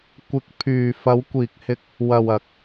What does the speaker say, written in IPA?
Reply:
kʷ ɪ˨ k̚ pʰ yː˨ f ɐ˨˧ w kʷ iː˨ k̚ h ɪ˧ k̚ | w ɐ˨ w ɐ˨˥ k̚

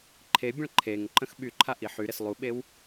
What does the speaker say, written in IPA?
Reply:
ǃʰ e bʲ ə̃ ɭ ǃʰ e ŋ ǃ ə̃ x ɓ y ǃʰ a ʔ i ħ y ɾ e s lˠ u ɓ e w

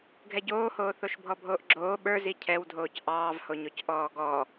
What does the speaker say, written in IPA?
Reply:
ɡʱ ɛ ɟ oː h oː θ o ʃ bʱ ɔ bʱ oː ʔ ɡ͡ǁ oː ɓ ə˞ z i cʰ ɛ w dʱ oː c ʔ ɑː v h o ɲ o c ʔ ɔː ɡ ɔ

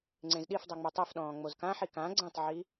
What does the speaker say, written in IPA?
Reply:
ŋ͡ǀ ẽ z ɗ i f dˤ ɛ ŋ͡m o tˤ ɛ f ɗ ɔ̃ː ŋ͡m o z k ã ħ i k ã ɡ͡ǀ ẽ tˤ ʕ i

